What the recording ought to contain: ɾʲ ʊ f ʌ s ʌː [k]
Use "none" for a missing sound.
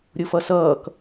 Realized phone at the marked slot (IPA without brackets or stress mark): k